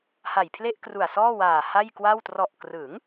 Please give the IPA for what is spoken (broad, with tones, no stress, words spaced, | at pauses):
ha˨˩jpʰle˥˩ʔkru˨˩a̯ sɔː˥˩waː˨˩ha˥˩j kwa˥˩w trɔ˨˩ʔkrɯ˩˦ŋ